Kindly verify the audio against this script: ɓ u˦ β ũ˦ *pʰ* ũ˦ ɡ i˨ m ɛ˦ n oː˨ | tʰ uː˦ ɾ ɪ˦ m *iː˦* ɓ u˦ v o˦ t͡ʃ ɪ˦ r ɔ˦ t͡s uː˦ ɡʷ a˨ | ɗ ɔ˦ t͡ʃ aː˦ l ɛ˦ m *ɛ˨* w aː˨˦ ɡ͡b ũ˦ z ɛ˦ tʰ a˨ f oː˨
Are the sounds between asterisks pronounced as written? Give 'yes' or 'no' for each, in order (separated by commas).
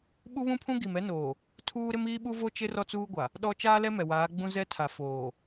yes, yes, yes